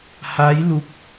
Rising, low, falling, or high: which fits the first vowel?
rising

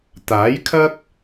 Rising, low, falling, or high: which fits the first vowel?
rising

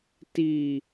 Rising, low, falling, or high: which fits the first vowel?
low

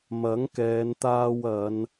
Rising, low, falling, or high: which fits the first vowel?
rising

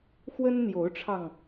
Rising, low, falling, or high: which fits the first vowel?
high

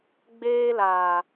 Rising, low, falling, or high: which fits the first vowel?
high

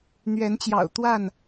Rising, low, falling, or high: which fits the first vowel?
rising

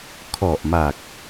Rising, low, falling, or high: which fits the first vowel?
low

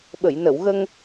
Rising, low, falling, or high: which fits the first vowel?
low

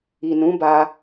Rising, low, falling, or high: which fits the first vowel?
low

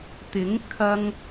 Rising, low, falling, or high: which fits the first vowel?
rising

